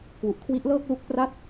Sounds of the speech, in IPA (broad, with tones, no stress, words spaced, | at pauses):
kwu˨˩ʔkʰwi˦˥ʔlɤː˥˩k̚lu˦˥k̚ pra˥˩t̚